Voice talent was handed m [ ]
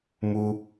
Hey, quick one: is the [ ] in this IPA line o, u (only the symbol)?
u